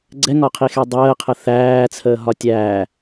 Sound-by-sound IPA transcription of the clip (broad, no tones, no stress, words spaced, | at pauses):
ɡ͡ǀɛŋɒqʰixɛ dˤəːqʰə θæːt͡sʰəːɦɒ tʲæː